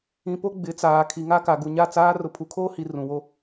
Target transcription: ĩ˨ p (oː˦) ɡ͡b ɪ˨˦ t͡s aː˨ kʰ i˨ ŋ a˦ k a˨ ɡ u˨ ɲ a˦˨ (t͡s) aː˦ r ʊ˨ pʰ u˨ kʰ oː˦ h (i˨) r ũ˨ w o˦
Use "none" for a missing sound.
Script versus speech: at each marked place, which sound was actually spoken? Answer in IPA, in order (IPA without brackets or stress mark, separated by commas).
o˦, t͡s, i˨